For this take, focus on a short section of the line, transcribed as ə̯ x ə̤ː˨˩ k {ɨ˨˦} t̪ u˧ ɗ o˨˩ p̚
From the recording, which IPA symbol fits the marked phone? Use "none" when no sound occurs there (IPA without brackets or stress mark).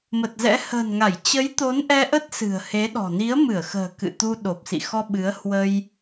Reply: ɨ̰˧˨